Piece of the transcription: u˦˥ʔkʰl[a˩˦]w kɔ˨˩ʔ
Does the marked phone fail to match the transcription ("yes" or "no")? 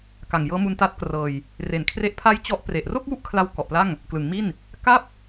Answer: yes